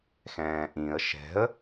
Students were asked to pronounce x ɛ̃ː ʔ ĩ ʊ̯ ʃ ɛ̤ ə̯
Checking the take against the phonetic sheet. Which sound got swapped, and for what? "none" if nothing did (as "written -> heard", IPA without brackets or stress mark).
ʊ̯ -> ə̯